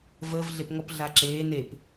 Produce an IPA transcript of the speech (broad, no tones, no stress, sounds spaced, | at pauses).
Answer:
v əː v ɮ e p ŋ ɔ p ɮ a ǁ eː n e p